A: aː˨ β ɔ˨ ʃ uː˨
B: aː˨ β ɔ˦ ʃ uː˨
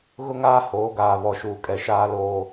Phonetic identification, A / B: A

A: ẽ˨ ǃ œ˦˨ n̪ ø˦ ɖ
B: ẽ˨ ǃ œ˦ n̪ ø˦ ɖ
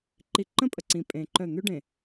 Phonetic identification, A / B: A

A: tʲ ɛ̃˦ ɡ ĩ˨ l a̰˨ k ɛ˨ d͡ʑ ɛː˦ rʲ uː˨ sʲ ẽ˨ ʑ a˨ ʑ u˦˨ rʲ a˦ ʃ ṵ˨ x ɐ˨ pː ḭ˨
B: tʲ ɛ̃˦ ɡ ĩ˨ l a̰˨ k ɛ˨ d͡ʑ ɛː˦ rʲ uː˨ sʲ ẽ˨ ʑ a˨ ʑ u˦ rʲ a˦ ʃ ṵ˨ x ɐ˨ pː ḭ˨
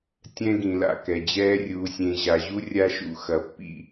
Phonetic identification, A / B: B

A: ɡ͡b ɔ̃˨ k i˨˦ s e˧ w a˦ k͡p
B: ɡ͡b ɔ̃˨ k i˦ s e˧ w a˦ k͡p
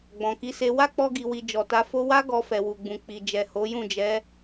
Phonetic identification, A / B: A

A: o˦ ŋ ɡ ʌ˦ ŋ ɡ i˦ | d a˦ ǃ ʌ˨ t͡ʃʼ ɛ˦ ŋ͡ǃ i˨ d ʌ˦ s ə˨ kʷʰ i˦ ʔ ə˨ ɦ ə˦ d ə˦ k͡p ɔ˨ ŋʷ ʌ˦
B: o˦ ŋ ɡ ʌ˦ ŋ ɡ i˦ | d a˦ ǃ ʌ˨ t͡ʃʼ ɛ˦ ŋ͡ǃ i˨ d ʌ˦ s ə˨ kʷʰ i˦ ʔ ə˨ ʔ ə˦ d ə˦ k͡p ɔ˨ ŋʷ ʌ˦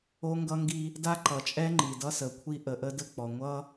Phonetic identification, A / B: B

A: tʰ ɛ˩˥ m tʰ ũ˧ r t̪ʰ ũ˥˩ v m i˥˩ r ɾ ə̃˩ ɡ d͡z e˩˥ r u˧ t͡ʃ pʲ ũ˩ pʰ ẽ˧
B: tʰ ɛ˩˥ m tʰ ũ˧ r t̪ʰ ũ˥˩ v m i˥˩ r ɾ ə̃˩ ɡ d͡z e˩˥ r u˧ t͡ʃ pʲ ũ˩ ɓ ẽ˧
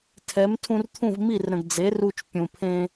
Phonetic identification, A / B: A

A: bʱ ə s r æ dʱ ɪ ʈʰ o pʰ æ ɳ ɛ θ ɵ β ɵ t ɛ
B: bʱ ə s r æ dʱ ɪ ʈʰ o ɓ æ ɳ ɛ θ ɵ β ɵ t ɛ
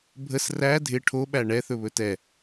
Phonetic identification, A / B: B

